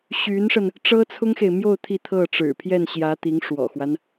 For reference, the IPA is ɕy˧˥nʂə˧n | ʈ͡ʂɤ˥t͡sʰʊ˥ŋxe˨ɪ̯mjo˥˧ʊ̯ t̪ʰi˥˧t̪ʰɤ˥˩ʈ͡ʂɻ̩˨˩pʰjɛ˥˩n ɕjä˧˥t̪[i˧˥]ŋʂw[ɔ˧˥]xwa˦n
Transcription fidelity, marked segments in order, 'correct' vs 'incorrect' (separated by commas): correct, incorrect